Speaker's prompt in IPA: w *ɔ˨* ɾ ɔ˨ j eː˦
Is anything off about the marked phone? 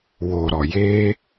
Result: yes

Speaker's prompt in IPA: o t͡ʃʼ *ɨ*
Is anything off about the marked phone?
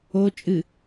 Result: no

